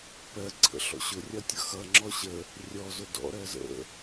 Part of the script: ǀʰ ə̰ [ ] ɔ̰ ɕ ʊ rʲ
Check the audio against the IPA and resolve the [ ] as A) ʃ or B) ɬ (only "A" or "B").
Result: B